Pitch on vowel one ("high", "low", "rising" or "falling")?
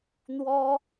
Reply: high